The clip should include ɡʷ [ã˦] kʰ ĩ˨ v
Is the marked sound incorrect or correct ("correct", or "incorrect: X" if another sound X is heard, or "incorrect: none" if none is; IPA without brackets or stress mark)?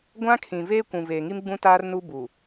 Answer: correct